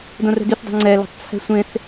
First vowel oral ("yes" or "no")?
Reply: no